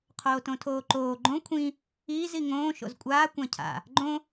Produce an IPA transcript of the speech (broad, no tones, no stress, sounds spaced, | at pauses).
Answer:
qʰ oː t õ tʰ oː ǃ oː ɡ͡ǃ õ kʷʰ ĩ | iː z i ŋ õː ʃ o̰ z kʷʼ aː kʷ ã cʰ a̰ | ɡ͡ǃ õ